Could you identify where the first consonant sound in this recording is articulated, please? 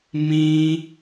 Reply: labial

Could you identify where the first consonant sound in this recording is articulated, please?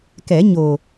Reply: velar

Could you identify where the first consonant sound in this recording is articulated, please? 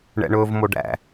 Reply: retroflex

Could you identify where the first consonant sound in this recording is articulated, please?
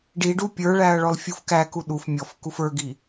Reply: retroflex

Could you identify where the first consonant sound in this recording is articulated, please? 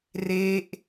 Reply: alveolar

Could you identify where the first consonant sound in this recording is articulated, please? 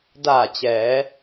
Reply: alveolar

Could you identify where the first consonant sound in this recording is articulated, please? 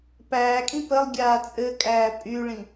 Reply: labial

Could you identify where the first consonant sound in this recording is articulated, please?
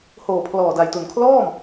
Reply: glottal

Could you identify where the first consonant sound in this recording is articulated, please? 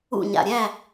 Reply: palatal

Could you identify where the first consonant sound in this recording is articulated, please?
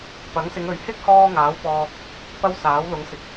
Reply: labial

